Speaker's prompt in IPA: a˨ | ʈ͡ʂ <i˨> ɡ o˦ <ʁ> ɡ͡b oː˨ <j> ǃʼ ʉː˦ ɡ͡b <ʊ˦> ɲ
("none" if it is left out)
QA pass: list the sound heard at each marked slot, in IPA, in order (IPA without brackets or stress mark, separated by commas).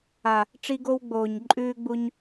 i˦, w, ɲ, u˦